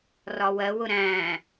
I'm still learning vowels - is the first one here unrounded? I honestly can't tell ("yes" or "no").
no